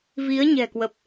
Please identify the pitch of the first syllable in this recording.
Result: rising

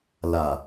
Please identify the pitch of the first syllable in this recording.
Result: low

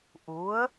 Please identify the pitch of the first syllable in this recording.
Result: rising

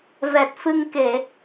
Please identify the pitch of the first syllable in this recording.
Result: low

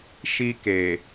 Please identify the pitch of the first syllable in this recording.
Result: high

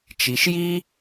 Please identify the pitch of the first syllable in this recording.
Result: low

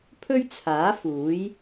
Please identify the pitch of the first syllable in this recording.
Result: high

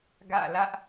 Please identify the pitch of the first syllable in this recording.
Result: falling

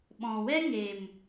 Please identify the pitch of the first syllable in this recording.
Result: low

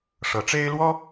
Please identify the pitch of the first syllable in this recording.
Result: rising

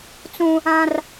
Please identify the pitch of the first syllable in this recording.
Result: high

